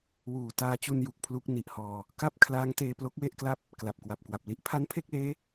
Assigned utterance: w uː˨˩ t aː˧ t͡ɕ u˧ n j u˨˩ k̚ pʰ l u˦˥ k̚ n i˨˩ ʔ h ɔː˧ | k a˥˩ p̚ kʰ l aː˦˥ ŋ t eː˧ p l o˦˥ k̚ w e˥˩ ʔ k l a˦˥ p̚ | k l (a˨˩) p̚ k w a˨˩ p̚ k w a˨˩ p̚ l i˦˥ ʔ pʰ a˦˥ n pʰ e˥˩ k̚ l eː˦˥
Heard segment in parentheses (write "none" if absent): a˨˩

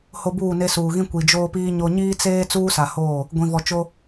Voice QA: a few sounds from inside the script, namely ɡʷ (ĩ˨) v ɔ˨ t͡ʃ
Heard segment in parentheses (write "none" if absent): ĩ˨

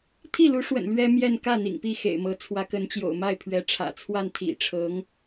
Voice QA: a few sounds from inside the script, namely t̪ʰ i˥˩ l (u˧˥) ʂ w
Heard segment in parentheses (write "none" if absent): u˧˥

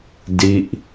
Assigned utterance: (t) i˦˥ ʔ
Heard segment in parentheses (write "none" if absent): d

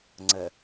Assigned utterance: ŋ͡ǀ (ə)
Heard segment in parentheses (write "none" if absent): ə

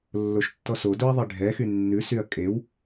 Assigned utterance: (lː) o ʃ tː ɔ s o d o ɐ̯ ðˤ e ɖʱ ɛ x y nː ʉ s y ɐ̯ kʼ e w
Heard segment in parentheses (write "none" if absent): lː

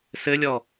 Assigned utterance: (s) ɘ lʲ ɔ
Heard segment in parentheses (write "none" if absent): s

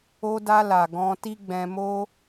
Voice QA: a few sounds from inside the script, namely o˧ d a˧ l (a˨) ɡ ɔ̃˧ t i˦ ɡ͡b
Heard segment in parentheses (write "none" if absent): a˨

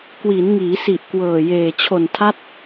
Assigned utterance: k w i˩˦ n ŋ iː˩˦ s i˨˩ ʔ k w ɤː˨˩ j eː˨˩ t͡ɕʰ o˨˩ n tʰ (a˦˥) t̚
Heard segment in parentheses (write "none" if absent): a˦˥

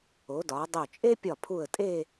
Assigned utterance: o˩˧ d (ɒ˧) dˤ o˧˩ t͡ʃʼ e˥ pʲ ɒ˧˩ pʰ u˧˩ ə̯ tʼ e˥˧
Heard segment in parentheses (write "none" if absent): ɒ˩˧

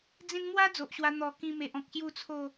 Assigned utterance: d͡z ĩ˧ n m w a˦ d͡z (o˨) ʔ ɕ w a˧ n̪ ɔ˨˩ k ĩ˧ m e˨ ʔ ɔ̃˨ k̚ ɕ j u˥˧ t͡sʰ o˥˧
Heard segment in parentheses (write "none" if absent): o˨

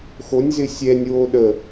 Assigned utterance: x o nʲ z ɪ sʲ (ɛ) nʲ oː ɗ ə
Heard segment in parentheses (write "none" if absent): ɛ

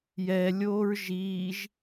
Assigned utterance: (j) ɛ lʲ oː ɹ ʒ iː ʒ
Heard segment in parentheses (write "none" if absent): j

